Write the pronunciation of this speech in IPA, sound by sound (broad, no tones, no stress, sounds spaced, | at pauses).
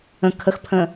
ə̃ kʰ ə x pʰ ə̃